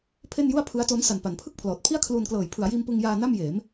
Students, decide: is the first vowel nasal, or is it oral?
oral